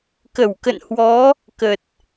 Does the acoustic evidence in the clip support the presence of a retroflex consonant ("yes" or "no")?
no